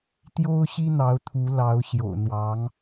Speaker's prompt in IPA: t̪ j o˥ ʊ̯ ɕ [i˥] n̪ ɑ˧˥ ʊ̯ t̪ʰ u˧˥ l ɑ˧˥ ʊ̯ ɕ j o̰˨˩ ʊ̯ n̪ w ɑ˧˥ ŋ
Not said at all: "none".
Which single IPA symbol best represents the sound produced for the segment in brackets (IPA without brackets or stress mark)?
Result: i˥